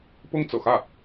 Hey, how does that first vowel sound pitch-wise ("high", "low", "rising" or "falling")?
high